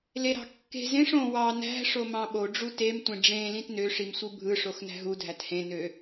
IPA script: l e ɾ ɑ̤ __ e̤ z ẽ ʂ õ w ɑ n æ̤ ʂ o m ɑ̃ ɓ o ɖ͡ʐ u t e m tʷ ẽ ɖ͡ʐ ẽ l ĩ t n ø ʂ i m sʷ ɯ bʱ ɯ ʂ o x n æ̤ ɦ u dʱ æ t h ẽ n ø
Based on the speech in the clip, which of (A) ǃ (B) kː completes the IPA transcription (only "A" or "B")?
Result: B